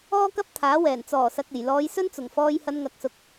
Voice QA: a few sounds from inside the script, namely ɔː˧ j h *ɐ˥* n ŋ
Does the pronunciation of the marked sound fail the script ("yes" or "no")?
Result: yes